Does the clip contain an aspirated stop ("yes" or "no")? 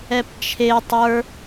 yes